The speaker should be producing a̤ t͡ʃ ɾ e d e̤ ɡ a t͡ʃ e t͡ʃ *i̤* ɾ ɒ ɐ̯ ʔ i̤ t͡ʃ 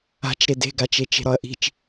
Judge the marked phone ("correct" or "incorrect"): incorrect